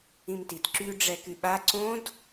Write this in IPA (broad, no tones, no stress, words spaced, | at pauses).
ĩmtit ǁy ɖ͡ʐɛkyɓa ǀõd